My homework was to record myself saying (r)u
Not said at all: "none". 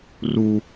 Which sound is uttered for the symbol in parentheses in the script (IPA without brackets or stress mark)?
r